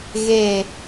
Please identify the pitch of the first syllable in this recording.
falling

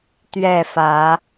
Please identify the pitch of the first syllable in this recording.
falling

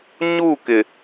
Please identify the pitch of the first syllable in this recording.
falling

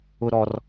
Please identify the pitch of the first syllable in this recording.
low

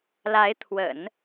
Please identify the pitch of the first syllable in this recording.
rising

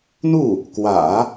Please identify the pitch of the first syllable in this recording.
falling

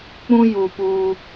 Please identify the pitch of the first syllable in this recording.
high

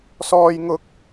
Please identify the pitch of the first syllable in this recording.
high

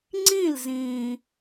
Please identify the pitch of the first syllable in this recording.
falling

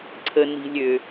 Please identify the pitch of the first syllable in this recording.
low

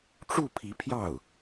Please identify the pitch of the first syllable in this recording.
falling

